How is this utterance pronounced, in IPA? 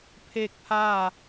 pʰ eː˥˨ k̚ pʰ aː˥˨

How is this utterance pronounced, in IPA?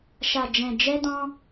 ʃ a˧ d͡ʒ ɛ̃˧ d͡ʒ ɛ˦ d ɔ̃˦

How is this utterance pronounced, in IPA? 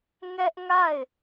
ŋ ɛ˦ ʔ ŋ a˦˨ ɪ̯

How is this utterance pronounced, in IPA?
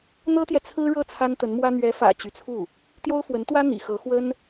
n̪ ɤ˥ t̪ j ɛ˨ t͡sʰ ɹ̩˥ ɻ ɤ˥˩ t͡sʰ a˥ n t̪ ə˧˥ n m w ä˥ n̪ ɥ ɛ˧˥ f ä̰˨˩ t͡ɕ y˧˥ t͡sʰ u˥˩ | t̪ j o˥ ʊ̯ f w ə˧˥ n t̪ w ä˥ n̪ ḭ˨˩ x ɤ˧˥ x w ə˥ n

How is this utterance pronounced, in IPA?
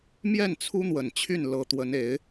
m j ɛ˥˩ n t͡sʰ u˥ n̪ w ə˨˩ n t͡ɕʰ y˥˩ n l ɤ˧˥ t̪ w ə˧˥ n e˧˥ ɪ̯

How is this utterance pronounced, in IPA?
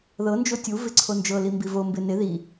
ð ɤ n d͡ʒ o tʲ u v ɪ ǀʰ o n d͡ʒ ɤ l i m b i v o m b ɪ n ɪ ð i

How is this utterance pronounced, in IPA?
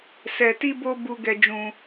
s ɛ˧ t i˦ b o˦ b u˦ ɡ ɛ˦ d͡ʒ ũ˦

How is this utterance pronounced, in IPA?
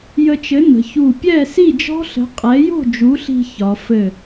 j ə˧ t͡ʃ ɘ˨˥ n ə̤˩˧ ç u˧˩ pʲ ɛ˥˨ s i˥˨ d͡ʒ ɔ̤˦˥ ɬ ə̤˨˥ qʼ ɛ˨˥ j o̤˥˨ d͡ʒ u˨˥ ɬ i̤˧ ç ɒ˩˧ f ɘ˧˩

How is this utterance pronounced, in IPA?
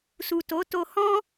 s u˨ t o˨˦ t o˧ h ɔ̃˦

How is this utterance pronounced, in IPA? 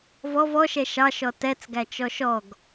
v ɔ v ɔ ʃ ɛ ʃ ɑ ʃ ɔ t ɛ t͡s ɡ æ t͡ʃ ɔ ʃ ɔ ɡ

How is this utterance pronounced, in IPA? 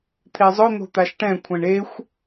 t̪ʰ e zˤ ʊ n̪ o̤ t̪ a ʃ ʈ ɛ̃ kʷʰ ɛ̃ ɳ e xʷ

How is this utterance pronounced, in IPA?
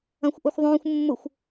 ɐ̃ xʷ ʔ o xʷ ðˤ õː xʷ mː ʊ xʷ

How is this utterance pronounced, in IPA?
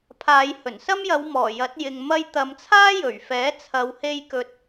pʰ aː˨˧ j h ɵ˨˩ n s ɐ˥ m j ɐ˨˧ w m ɔː˨˩ j ɐ˨˥ t̚ j ɪ˨ ŋ m ɐ˧ j t̪ ɐ˨˧ m t͡sʰ aː˥ j ɵ˨˩ ɥ f ɛː˨˥ t͡sʰ ɐ˨ w h e˧ j k ɵ˨ t̚

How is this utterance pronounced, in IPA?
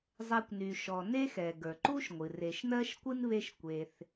zˤ ɛ˨ kʷ n y˩ ʃ ɔ˩ n e˦ x ɛ˩ ɡ ə˞˩ ǃ u˥ ʃ ŋʷ ɨ˩ r e˨ ʃ n ɜ˥ ʃ kʷ ɨ˥ n β e˦ ʃ kʷ e˨ θ

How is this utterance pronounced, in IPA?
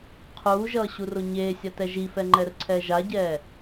qʰ uː ʒ ʌː ɕ u r o ɲ eː sʲ a t ɛ ʒ i f ɛ ŋ͡ǃ ɛ r ǀʰ ɛː ʒ a ɟ ɛː

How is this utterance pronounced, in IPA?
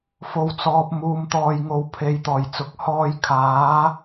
f o˨ w t͡s ɔː˨ p̚ m uː˨ m t̪ ɔː˨ j ŋ o˨ w pʰ e˨˧ j t̪ ɔː˨˩ j t͡s ʊ˨˥ k̚ h ɔː˧ j kʰ aː˨˥

